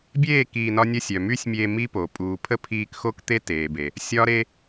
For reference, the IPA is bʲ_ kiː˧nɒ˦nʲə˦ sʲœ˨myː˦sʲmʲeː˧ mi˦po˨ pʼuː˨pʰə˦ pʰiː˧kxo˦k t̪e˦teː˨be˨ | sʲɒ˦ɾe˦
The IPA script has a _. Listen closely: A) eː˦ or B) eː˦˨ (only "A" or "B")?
B